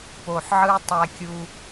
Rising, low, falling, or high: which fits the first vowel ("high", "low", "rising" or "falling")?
low